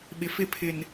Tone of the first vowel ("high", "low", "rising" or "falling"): low